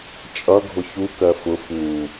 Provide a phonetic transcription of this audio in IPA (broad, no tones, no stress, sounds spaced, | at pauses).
t͡ʃʼ ʌ ɡʱ ʊ ç u k ɜ f ʊ f u